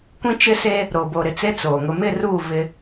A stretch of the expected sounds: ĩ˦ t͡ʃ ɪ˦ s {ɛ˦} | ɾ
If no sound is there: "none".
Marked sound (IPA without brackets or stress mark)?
e˦